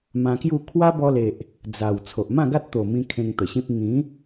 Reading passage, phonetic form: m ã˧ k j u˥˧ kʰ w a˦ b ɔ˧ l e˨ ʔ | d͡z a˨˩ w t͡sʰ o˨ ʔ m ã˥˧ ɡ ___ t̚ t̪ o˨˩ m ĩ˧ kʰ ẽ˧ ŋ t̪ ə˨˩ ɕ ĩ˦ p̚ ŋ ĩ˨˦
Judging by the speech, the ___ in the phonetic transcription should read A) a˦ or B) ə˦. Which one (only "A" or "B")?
A